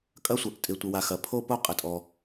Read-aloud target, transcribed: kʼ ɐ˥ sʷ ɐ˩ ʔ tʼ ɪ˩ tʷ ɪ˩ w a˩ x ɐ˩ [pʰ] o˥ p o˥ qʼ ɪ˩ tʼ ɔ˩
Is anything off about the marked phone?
no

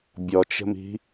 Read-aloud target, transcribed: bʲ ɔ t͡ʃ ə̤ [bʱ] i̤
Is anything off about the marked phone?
yes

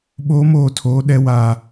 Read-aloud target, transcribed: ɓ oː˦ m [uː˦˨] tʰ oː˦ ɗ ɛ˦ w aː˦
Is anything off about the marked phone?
yes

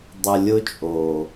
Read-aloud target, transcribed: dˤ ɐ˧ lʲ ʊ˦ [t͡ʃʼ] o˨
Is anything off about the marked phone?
no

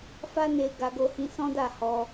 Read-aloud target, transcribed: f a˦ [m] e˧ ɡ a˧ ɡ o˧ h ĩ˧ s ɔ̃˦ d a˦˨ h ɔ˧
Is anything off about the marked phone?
yes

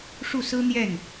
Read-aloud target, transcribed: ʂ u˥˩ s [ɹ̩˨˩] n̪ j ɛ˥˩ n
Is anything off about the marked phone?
yes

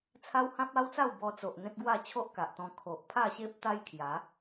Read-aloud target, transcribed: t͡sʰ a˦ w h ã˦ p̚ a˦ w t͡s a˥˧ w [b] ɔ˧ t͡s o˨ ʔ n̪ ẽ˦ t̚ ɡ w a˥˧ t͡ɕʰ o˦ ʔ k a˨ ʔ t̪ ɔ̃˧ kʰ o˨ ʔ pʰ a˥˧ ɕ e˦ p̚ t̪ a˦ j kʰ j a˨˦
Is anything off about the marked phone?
no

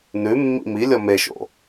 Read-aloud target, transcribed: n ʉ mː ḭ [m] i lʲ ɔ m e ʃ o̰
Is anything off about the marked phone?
no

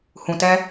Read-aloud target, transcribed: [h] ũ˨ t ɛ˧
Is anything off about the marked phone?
no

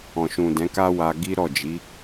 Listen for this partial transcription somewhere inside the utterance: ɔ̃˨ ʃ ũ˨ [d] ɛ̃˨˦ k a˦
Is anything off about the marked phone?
no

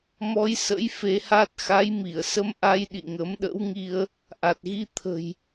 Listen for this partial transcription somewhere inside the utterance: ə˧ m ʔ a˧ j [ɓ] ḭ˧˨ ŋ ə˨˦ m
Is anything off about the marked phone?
yes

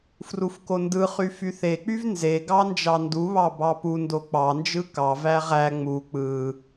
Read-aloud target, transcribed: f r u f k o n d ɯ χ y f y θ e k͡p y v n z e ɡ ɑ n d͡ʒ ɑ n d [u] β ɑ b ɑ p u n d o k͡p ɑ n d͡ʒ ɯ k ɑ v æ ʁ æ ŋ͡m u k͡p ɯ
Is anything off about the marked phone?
no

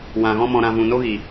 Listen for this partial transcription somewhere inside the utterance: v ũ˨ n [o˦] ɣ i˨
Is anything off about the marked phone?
no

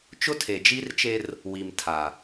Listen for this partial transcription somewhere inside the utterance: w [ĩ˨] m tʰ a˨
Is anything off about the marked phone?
yes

